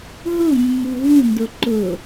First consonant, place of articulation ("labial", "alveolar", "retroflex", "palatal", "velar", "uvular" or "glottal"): glottal